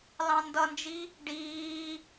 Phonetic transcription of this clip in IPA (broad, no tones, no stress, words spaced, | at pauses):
lɑ̃ndʌnd͡ʒi | ɖiː